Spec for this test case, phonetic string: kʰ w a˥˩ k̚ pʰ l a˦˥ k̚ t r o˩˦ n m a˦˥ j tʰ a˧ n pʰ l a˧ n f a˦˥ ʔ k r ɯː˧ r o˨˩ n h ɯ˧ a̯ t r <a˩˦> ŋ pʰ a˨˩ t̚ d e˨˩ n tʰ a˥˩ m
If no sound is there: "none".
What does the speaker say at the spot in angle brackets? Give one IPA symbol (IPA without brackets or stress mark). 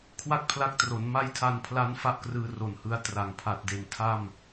a˩˦